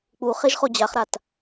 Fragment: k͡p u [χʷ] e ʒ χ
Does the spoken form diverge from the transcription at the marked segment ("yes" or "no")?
yes